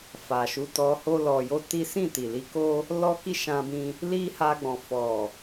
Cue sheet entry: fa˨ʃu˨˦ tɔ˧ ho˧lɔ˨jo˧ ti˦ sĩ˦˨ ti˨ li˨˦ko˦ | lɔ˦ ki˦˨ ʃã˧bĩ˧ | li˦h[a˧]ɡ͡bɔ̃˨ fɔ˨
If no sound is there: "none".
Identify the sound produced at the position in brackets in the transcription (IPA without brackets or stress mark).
a˧